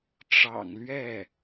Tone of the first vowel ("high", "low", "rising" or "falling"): low